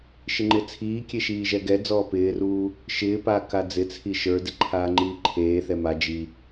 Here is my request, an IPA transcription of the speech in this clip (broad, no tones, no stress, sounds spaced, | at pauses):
ʃ ɪ ŋ͡ǃ ɪ t͡sʰ iː kʲ e ʃ iː ʒ ɛ ɡ ɛ d͡z ɔː p ɪː r uː | ʃ ɪː p aː k a d͡z ɪ t͡sʰ i ʃ ə˞ d ɪ ǃʰ aː ŋ͡ǃ iː ǃʰ eː θ ɛ m a d͡ʒ i